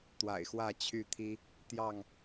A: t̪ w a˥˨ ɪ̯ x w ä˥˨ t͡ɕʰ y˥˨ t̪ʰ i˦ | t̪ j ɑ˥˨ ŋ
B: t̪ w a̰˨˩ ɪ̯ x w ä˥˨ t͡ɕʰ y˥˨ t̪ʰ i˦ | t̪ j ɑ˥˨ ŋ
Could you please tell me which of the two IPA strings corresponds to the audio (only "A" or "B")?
B